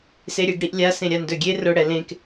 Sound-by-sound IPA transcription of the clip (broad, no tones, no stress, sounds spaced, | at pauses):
s e ɾʲ e ɡ ɽ i ʔ lʲ a s ẽ ɾʲ a n d ɵ ɡʲ e r ʊ ɽ ɛ l ẽ k